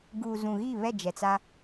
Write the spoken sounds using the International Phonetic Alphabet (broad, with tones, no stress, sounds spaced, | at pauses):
ɡ uː˨ z ũ˨ ɣ iː˦˨ β ɛ˦˨ d͡ʒ ɛ˨ t͡s a˦